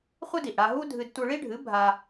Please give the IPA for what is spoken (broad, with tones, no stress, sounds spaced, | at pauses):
χʷ ɨ˥ d i˩ ʔ ɽ a˧ ɦ u˥ dʱ ɨ˧ d tʷ ɯ˧ ɭ i˥ ɖʱ ɨ˩˥ bʱ a˧